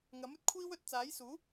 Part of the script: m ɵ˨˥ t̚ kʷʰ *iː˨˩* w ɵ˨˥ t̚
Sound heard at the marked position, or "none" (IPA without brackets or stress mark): iː˥